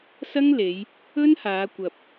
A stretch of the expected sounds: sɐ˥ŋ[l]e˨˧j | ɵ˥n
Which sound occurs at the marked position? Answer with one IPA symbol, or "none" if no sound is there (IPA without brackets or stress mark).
l